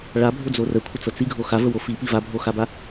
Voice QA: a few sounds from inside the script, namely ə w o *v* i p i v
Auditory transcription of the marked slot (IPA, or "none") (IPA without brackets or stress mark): f